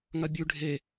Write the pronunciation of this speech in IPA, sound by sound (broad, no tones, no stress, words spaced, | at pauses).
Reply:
ŋɐbʲʉ ɖʱe